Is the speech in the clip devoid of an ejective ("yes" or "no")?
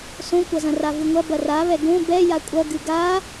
no